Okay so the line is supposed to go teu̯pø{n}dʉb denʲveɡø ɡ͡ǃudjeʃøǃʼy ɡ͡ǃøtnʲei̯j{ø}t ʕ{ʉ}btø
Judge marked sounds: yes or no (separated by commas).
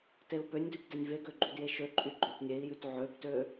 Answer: no, no, no